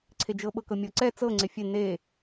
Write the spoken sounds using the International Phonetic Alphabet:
ǀʰ e d͡ʒ ɤ ɓ ɤ k ɤ mʲ ɤ ǀ ɛ t͡s ɤ ŋ͡ǀ e fʲ e n e

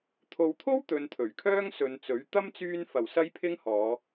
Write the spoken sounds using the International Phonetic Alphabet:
t̪ʰ o˨ w t̪ʰ o˥ w t̪ ɵ˨˧ n t̪ʰ ɵ˨˩ ɥ kʰ œː˥ ŋ s ɵ˨˧ n t͡s ɵ˨˥ ɥ t̪ ɐ˥ m t͡s yː˧ n f ɐ˨˩ w s ɐ˧ j pʰ ɪ˧ ŋ h ɔː˨˧

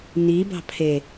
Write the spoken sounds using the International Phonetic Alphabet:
n i b ɑ̤ pʰ e

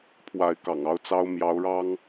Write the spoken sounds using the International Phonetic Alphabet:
pʰ w a˧˥ ɪ̯ k ɑ̰˨˩ ŋ ɑ˥ ʊ̯ t͡s ɑ˥ ʊ̯ m j ɑ˧˥ ʊ̯ ɻ ɑ˥ ŋ

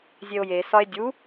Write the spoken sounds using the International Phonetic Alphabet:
zʲ e o̯ j e s ɒ e̯ dʲ u

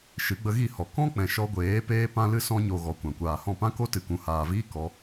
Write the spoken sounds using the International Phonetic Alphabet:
ʃ ɨ˨˦ ɡ͡b ə˧ ɣ i˦˨ h ɔ˨ k ɔ̃˦ k͡p ɛ̃˨ ʃ ɔ˧ ɡʷ eː˨˦ p eː˦ p ã˦ l ɨ˦ s ɔ̃˧ ɲ o˨ ɣ ɔ˨ kʷ ã˨ kʷ aː˨ h ɔ̃˦˨ p ã˦ k o˦ t ɨ˨ k ũ˨ h aː˨ v iː˦ k ɔ˧

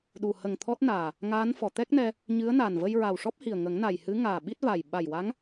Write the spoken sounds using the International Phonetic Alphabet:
ɗ u˨˩ h ə˨˩ ŋ t̪ʰ ɔ˦˥ t̚ n aː˨˩ | ŋ aː˧˥ n f ɔ˨˩˨ t̪ ɛ˦˥ k̚ n ɛ˧ | ɲ ɨ˧˥ ə̯ n a˨˩ n v ə˧ j ɹ a˨˩ w ʂ ɔ˦˥ p̚ h i˨˩ ə̯ ŋ ə˨˩˦ ŋ n a˨˩ j h ɨ˧˥ ŋ aː˨˩ ɓ i˦˥ t̚ v a˨˩ j ɓ a˨˩ j w a˧˥ ŋ

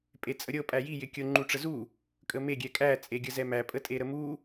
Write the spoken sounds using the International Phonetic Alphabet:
pʼ e t͡sʼ ə ɾʲ ɤ pʼ æ j i j ɪ kʲ ɤ ŋ͡ǃ u ʈ͡ʂ ə z u | kʼ ə m e ɡʲ ɛ kʼ æ t͡sʼ e ɡʲ ə z ɛ m æ pʼ ə tʼ e ɾ ə m u

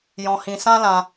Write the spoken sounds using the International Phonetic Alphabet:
j ɔ̃˧ h ĩ˧ s ã˦ l ã˧

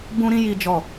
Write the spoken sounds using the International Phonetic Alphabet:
b ũ˦ ɾ ĩ˦ j i˦ d͡ʒ ɔ˦˨

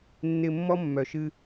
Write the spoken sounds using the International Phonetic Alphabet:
nː ɪ˨ mː ɔ˦ mː œ˨ ʃ ɨ˦

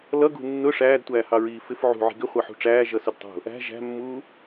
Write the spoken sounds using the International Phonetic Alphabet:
l ʌ ɡ ṳ nː ʊ ʂ æː d tʷ æː h ɑ ɹ iː f ɪ f ʕ ṳ ʕ i̤ ɡ ɪ χʷ ɑ ħ ṳ ʈ͡ʂ æː ʒ ʌ s ʊ d tˤ ṳ | æ̤ ʒ æ̤ mː uː

